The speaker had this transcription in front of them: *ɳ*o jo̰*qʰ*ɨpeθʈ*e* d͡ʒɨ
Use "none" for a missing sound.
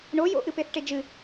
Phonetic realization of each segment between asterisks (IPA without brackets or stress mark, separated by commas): ɳ, ʔ, e